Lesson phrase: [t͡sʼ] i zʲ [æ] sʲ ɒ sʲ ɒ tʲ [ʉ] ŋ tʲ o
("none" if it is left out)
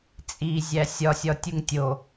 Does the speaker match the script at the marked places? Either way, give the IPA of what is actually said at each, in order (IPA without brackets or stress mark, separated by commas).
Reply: t͡sʼ, æ, u